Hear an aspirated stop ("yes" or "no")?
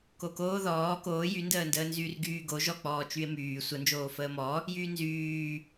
no